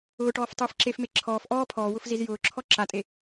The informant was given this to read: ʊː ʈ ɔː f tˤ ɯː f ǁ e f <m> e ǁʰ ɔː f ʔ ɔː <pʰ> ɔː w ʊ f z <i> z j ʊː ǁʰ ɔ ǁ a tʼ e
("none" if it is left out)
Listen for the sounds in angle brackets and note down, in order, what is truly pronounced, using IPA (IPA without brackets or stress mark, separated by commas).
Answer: m, pʰ, i